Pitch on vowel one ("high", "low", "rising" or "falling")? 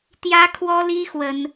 high